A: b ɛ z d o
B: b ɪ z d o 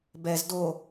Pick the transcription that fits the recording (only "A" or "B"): A